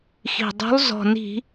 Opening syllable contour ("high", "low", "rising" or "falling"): low